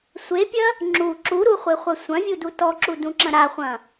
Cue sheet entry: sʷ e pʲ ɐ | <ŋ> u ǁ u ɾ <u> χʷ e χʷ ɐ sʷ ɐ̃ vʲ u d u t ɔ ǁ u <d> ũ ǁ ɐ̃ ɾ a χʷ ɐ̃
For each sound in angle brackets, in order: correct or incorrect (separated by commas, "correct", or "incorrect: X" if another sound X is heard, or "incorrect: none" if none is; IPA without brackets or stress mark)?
incorrect: ŋ͡ǁ, correct, correct